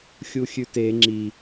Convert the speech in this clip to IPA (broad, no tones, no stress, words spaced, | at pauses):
xʲuxʲʉte ŋ͡ǁi